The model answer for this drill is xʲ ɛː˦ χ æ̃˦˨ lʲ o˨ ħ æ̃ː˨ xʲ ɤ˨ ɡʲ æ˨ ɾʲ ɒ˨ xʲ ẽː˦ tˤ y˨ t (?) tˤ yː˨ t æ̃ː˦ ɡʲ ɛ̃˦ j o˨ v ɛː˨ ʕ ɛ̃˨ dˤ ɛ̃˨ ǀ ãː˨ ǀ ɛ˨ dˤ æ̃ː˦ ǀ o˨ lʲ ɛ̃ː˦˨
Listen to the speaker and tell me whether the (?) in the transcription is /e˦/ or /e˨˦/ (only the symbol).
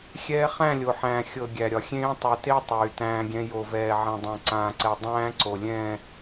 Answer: e˦